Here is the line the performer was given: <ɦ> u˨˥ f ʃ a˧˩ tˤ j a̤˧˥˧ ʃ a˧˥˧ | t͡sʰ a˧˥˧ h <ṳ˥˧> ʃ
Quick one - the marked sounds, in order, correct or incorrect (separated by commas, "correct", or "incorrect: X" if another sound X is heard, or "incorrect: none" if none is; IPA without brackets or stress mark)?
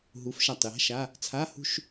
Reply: correct, correct